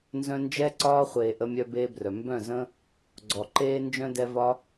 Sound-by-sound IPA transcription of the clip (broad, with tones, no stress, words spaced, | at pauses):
nzœ̃˧nd͡ʒɛ˦ ǀɒː˧χʷeː˨ ʔə˧mʲœ˧beː˧brœ˨ mbœ̃˦˨zə̃˦ | ɡ͡ǀɔ˨ǃeː˧nd͡ʒœ̃˧dɛ˧ vɒ˦